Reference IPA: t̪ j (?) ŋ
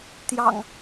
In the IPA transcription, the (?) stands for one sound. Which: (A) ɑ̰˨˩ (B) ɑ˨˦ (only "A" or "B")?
A